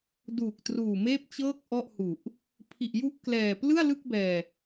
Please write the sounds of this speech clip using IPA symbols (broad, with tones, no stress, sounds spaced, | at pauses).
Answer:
d uː˨˩ k̚ t r uː˨˩ m eː˥˩ p̚ t͡ɕ ɤː˥˩ k̚ ʔ ɔ˥˩ ʔ h u˨˩ ʔ | pʰ i˨˩ ʔ j u˦˥ ʔ k l ɛː˨˩ p l ɯ˥˩ a̯ l ɯ˥˩ k̚ b ɛː˧